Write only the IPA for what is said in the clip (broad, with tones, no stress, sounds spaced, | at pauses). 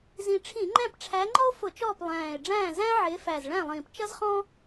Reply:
z ĩ˨˩ ʈ͡ʂʰ ĩ˧˩˧ ŋ͡ǃ æ̃˦˨ p ʈ͡ʂʰ æ˨˦ ŋ͡ǃ ɔ˥ o̯ f ʊ˧˩˧ t͡ʃ ɔː˦˨ p lˠ æ̃ː˨˩ e̯ ɖ͡ʐ æ̃ː˦˨ z æ̃˥ ʕ ɪː˨˦ f æ˨˩ z ɭ æ̃˦˨ lˠ ĩː˨˩ p t͡ʃ ʌ˥ z χ ɔ̃ː˥